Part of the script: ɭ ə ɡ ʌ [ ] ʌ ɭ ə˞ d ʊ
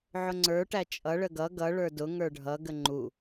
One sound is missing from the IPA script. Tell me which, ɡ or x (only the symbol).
ɡ